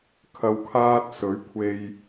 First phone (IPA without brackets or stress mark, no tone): kʰ